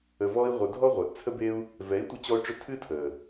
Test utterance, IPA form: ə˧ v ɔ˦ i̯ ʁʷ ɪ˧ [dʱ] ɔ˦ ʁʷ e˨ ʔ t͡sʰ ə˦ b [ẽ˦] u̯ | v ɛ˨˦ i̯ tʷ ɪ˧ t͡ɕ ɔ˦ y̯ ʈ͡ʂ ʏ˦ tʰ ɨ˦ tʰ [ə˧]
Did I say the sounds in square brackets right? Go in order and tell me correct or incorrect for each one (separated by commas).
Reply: correct, incorrect, incorrect